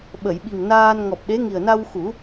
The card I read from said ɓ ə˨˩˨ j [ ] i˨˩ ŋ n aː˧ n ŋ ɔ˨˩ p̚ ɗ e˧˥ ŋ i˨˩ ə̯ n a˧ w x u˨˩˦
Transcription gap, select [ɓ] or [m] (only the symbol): ɓ